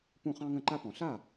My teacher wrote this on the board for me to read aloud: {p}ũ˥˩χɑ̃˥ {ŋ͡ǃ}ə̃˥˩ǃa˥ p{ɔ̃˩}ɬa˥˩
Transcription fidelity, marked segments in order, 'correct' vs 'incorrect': correct, incorrect: ŋ, correct

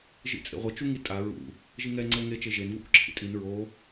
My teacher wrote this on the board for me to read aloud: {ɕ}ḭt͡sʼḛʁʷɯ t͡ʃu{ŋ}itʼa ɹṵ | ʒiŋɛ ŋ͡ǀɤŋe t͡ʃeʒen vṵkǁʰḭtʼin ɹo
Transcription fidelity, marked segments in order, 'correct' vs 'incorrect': incorrect: ʒ, correct

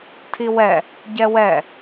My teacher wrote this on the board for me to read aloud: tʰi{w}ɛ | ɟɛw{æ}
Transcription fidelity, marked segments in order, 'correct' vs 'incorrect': correct, incorrect: ɛ

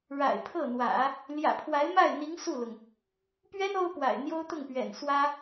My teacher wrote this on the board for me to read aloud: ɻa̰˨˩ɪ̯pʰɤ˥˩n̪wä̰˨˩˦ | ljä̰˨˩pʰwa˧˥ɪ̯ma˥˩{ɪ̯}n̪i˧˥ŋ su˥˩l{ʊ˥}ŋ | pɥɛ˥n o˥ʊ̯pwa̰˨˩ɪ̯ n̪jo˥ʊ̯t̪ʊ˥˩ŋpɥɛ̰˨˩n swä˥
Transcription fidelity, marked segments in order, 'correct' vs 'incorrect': correct, incorrect: ʊ˩

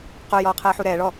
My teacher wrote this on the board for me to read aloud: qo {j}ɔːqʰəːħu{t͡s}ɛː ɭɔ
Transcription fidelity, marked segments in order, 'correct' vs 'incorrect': correct, incorrect: ɾ

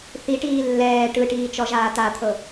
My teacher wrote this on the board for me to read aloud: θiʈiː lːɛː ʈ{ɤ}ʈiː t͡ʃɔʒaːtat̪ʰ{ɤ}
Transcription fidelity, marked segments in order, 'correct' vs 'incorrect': incorrect: ɯ, correct

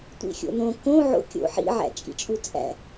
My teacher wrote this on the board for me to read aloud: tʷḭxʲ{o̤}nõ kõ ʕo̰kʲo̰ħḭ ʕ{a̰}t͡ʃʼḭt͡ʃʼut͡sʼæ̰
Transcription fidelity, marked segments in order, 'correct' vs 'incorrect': incorrect: o̰, incorrect: æ̰

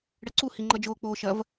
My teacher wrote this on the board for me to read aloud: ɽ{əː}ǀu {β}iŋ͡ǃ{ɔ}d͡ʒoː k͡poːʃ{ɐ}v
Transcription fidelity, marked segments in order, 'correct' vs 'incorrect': incorrect: ə, incorrect: h, incorrect: ʌ, correct

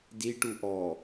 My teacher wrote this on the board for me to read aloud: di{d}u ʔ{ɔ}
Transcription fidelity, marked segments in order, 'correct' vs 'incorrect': incorrect: ʈ, correct

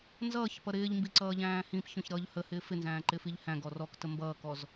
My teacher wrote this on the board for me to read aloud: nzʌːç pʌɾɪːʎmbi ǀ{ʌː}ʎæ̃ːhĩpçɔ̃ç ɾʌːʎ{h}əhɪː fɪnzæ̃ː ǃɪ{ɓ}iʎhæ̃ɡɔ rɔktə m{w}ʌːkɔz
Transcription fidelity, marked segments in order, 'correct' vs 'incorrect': correct, correct, incorrect: f, incorrect: b

